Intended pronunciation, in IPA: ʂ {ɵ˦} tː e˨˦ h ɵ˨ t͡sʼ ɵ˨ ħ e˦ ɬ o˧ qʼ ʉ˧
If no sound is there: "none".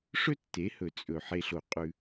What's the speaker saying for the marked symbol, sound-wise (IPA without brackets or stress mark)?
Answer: ɵ˦